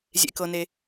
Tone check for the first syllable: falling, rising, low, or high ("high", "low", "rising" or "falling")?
low